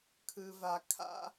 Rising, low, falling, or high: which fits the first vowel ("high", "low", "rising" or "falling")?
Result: low